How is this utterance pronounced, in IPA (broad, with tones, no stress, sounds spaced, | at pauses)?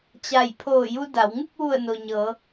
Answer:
t͡ɕ a˧˩ j pʰ oː˧˩ j u˧ d a˩˧ w ŋ u˥˨ k̚ ʋ u˧˩ ə̯ n o˩ ɲ ɤː˩˧